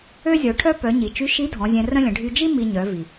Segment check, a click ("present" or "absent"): absent